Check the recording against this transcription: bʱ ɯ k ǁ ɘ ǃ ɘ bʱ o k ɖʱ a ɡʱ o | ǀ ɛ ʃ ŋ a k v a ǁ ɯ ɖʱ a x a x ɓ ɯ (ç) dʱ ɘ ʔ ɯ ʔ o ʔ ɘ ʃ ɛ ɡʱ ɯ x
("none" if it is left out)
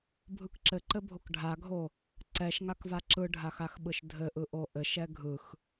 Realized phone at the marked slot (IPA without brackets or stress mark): ʃ